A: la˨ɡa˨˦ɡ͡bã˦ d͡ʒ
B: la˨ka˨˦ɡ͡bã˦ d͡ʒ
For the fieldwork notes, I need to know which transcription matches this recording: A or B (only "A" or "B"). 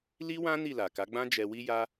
B